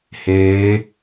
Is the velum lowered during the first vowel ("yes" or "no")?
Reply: no